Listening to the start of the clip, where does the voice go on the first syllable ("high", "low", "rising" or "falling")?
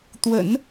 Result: low